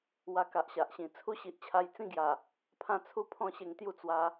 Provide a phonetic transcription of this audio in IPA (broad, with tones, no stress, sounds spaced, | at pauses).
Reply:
w a˧ k a˨ ʔ ɕ a˨ ʔ ɕ ĩ˨˩ t͡sʰ u˦ ɕ i˨ ʔ t͡ɕʰ a˧ j t͡s ĩ˥˧ ɡ j a˨˩ | pʰ ã˦ t͡sʰ u˥˧ pʰ ɔ̃˥˧ ɕ e˧ ŋ t̪ j u˥˧ t͡s w a˧